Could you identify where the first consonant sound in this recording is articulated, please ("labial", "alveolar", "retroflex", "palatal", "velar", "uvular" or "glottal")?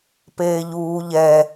labial